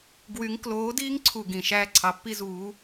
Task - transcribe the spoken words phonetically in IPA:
ɡ w y˨˦ ŋ k l oː˨˦ d iː˦ ŋ ǀʰ u˨˩ ɡ ĩ˨˩ ʃ æː˦ ǀʰ ɑ˨˦ pː i˦ z uː˨˦

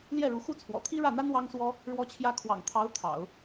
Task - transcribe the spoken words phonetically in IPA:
l j ɛ˥˩ ɻ u˧˥ x u˥ t͡sʰ w ɔ̰˨˩ t̪ʰ i˥ ɻ ä˥˩ n̪ a˥ n w ɑ˥ ŋ s w ɔ˥ | ɻ w ɔ˥ t͡ɕʰ j ä˥ kʰ w ɑ̰˨˩ ŋ t̪ʰ ɑ˧˥ ʊ̯ t̪ʰ ɑ̰˨˩˦ ʊ̯

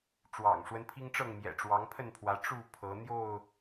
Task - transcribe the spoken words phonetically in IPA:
ʈ͡ʂ w ɑ̰˨˩ ŋ ʂ w ə˦ n pʰ i˦ ŋ ʈ͡ʂ ɤ˥˨ ŋ m j ɛ̰˨˩ ʈ͡ʂ w ɑ˨˦ ŋ pʰ ə˥˨ n pʰ w ä˨˦ ʈ͡ʂ u˥˨ pʰ ɤ˨˦ n̪ j o˥˨ ʊ̯

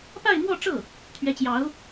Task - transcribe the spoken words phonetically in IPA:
p a˥˧ ɪ̯ m w ɔ˥˧ ʈ͡ʂ ɤ˥˩ | t̪ʰ ɥ ɛ˧˥ t͡ɕ j ɑ˧˥ ʊ̯

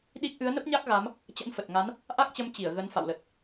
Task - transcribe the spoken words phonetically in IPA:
ɗ i˦˥ k̚ ʔ ɨ˨˦ ə̯ n ə˦˥ p̚ ɲ a˦˥ k̚ ɣ a˨˦ m | t͡ɕ ə̰˧˥ n f ə˨˩ t̚ ŋ a˨˦ n | ʔ a˦˥ k̚ t͡ɕ ə˨˦ m t͡ɕ i˧˩ ə̯ ɣ ə˨˦ n f a̰˧˨ w l ə˨˩ t̚

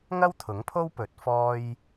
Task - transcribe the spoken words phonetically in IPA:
ŋ ɐ˥ w t̪ʰ ʊ˨˥ ŋ pʰ o˥ w p ɵ˨˥ t̚ f ɔː˥ j

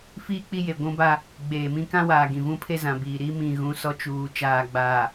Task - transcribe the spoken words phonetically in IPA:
f iː˦ k͡p i˦ j e˨ ɡʷ ũ˦ b a˦ | ɡ͡b eː˨ m ĩ˦ k ã˦ w aː˨ ɡ ĩ˨ v ũ˦ pʰ e˦ z ã˨ b iː˨ ɾ i˦ m ĩ˨ ɣ ũ˨˦ s ɔ˦ t͡ʃ uː˨ t͡ʃ aː˨ ɡ͡b aː˨

